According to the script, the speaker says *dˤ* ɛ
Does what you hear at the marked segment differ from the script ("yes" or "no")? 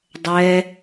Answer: no